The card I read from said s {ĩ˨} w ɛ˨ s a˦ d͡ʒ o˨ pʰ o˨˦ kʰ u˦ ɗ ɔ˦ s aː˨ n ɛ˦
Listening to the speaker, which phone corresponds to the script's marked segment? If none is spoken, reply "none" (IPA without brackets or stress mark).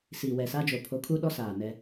i˨